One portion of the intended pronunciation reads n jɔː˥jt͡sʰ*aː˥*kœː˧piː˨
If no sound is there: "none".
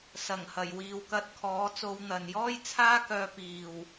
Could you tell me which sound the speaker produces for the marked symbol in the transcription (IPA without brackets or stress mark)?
aː˥